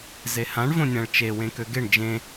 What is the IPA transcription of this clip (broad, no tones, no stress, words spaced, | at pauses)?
zehãɳ võnʲãɭt͡ʃe wẽkøɡeɳ d͡ʒẽ